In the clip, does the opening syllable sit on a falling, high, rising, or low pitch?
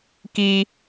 high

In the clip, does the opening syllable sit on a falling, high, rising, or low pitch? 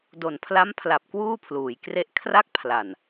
low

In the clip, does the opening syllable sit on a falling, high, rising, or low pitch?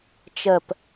falling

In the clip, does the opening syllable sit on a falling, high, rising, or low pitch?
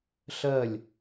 falling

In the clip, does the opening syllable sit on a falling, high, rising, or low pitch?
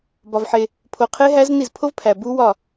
low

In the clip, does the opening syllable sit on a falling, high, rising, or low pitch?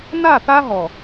falling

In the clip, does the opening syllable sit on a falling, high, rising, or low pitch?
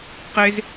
high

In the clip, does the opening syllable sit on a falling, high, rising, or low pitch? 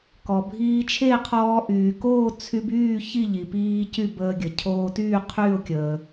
low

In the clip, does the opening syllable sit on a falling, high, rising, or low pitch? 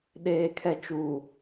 low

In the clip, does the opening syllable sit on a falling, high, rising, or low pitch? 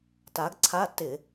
rising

